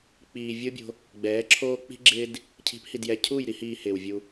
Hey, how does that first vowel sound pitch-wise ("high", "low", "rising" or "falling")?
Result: low